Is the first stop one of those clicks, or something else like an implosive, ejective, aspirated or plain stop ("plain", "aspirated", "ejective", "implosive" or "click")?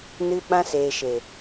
implosive